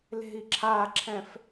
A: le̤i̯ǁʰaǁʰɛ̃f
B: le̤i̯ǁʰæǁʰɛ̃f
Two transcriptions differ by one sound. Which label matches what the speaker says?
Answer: A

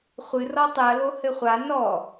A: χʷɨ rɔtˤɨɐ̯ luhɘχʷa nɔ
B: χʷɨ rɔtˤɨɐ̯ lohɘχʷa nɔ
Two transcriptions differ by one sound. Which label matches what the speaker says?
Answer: B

